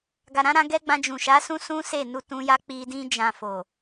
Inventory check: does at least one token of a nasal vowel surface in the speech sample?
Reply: yes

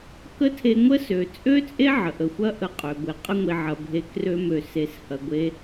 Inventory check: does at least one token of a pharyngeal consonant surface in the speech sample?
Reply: yes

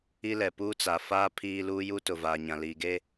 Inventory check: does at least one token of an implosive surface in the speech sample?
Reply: no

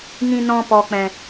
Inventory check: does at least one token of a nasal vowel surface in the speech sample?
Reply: yes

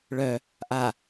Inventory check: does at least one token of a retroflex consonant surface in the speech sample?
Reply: yes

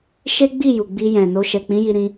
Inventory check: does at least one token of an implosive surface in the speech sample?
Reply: no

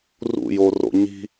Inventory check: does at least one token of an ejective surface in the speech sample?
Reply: no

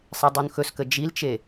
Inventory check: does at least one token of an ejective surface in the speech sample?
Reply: no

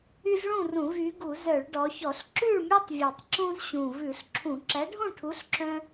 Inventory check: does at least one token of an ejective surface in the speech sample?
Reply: no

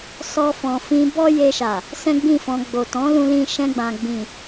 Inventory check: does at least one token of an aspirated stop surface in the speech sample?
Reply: no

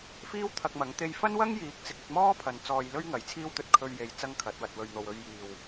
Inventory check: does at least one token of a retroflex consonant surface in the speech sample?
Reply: no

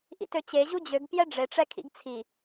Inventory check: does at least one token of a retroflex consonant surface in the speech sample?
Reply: yes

